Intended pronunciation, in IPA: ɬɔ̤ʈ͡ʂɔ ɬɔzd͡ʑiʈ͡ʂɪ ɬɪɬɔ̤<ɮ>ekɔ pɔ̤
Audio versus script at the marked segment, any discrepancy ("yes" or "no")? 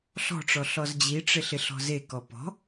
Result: yes